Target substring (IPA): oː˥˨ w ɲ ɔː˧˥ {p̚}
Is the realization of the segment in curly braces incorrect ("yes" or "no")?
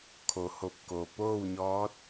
yes